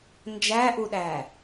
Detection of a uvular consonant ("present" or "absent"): absent